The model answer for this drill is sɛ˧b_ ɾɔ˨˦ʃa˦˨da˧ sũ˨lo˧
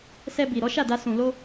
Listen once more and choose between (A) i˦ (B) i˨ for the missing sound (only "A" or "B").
B